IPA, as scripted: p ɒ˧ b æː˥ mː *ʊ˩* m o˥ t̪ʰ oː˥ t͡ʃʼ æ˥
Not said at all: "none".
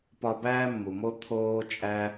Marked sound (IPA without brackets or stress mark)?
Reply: u˩